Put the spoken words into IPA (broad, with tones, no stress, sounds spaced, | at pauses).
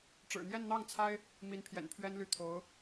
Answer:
ʈ͡ʂ ɻ̩˨˩ n̪ j ɛ˥˧ n n̪ ɑ˥˩ ŋ t͡sʰ a˥ ɪ̯ | m i˧˥ n pʰ j ɛ̰˨˩ n pʰ ɥ ɛ˥ n l y˥˩ t̪ʰ o˧˥ ʊ̯